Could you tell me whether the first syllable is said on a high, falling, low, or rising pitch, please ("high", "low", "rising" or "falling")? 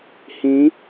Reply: rising